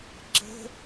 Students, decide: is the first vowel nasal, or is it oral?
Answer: oral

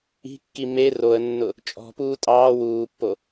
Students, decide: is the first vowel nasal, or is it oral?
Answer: oral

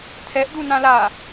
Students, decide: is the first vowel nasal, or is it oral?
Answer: oral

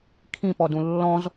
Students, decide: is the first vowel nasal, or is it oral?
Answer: nasal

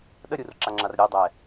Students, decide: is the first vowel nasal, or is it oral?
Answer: oral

